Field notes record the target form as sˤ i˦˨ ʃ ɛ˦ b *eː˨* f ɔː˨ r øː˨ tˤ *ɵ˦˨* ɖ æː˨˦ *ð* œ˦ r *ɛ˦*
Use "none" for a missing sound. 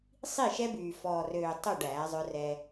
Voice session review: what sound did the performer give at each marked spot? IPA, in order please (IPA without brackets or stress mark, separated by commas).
yː˨, ɵ˦˨, zˤ, ɛ˦